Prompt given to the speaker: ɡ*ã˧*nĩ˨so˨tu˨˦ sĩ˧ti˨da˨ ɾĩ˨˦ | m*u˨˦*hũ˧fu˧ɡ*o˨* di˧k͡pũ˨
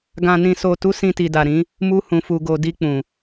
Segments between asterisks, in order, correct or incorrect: incorrect: ã˨, incorrect: u˦, incorrect: o˧

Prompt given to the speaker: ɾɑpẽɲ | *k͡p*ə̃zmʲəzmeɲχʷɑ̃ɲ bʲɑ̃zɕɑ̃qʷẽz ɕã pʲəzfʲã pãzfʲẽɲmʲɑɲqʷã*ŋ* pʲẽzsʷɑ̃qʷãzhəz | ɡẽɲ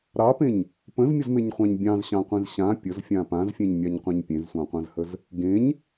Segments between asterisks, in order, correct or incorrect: incorrect: p, incorrect: ɲ

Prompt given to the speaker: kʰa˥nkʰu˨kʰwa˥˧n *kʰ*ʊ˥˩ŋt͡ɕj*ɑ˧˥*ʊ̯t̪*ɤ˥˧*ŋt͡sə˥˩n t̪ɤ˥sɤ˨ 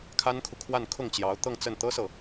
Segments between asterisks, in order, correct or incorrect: correct, correct, correct

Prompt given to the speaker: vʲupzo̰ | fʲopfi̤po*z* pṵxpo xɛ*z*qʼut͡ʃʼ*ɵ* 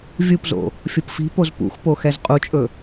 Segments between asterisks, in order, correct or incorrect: correct, correct, correct

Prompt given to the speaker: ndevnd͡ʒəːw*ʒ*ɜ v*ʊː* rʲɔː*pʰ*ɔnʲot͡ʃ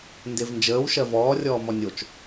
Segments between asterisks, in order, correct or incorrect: incorrect: ʃ, incorrect: ɔː, incorrect: m

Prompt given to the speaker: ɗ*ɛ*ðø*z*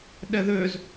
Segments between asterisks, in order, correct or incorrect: correct, correct

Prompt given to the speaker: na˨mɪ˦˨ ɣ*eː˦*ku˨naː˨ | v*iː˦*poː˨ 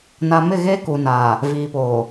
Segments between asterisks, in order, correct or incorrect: correct, incorrect: iː˨

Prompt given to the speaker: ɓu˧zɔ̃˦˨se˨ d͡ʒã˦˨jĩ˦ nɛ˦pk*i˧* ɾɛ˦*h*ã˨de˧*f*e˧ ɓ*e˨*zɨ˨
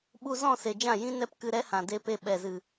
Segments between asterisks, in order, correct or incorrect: incorrect: ɨ˧, correct, incorrect: p, incorrect: ɛ˨

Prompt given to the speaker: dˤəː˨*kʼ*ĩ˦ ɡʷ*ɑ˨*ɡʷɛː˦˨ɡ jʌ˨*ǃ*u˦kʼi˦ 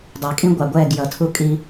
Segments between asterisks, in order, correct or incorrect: correct, correct, incorrect: tʰ

